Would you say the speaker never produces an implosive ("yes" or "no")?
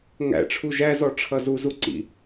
yes